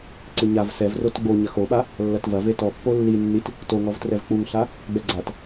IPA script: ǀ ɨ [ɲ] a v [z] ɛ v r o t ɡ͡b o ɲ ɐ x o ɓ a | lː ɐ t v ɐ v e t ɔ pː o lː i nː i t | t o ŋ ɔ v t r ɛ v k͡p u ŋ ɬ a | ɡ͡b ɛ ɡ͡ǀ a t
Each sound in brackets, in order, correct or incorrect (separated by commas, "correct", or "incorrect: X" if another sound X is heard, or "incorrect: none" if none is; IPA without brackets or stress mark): correct, incorrect: s